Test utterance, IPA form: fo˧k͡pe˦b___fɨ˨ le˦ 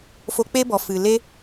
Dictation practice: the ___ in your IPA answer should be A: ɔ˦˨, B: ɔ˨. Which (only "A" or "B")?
B